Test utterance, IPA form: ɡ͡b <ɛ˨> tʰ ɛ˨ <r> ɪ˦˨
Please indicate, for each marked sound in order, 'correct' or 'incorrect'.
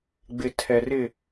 incorrect, correct

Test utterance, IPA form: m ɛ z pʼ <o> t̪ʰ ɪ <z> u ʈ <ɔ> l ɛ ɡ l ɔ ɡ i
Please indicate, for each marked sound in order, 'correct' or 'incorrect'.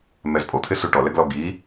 correct, incorrect, correct

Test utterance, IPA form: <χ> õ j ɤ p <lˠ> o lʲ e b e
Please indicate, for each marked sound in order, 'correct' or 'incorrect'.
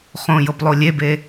correct, correct

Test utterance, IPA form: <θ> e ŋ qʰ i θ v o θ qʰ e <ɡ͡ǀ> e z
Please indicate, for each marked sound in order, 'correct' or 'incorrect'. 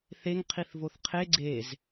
correct, correct

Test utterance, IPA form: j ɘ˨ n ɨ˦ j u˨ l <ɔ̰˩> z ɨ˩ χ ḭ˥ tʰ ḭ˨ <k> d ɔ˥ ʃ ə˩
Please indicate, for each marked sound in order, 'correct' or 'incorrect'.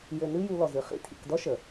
incorrect, correct

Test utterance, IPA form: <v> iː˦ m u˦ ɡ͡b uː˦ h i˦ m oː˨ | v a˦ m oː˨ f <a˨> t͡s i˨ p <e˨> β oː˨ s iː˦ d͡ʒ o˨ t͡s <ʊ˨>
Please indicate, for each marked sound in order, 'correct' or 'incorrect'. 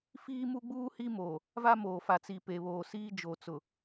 incorrect, correct, correct, correct

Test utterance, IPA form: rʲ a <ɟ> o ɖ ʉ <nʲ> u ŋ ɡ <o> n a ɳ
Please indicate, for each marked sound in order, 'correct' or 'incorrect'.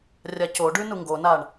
incorrect, incorrect, correct

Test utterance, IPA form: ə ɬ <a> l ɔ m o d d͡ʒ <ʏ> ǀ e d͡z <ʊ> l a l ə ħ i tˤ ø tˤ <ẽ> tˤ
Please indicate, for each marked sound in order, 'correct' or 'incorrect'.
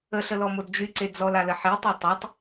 incorrect, incorrect, incorrect, incorrect

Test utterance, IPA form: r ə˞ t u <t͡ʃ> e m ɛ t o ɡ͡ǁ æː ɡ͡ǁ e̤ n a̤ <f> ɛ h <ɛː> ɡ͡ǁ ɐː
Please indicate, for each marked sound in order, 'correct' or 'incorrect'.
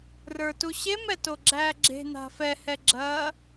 incorrect, correct, incorrect

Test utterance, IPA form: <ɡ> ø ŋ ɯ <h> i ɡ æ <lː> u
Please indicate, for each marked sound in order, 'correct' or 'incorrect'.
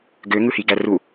correct, correct, incorrect

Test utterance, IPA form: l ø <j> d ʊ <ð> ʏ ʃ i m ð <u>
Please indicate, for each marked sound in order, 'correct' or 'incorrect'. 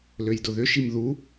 correct, correct, correct

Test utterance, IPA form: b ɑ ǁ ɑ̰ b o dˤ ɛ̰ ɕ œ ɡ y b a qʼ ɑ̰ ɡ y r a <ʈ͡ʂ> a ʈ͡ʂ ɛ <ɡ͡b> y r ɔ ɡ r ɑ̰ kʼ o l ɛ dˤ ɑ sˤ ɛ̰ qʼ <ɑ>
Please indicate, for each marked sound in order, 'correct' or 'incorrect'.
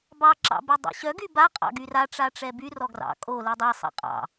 correct, incorrect, incorrect

